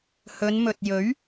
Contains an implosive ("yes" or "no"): no